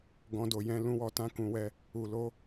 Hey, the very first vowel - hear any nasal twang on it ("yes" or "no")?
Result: yes